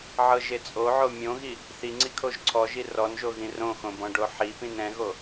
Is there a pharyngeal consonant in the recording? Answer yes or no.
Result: yes